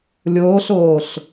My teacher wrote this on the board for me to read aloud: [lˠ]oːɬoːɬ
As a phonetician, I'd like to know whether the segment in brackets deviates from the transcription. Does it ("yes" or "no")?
yes